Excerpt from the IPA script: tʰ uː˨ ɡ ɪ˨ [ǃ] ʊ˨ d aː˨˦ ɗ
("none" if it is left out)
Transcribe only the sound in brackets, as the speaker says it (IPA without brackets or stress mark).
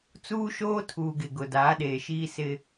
ɡ